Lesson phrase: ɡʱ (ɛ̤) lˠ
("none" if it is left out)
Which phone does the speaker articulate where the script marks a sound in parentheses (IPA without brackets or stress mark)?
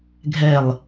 ɛ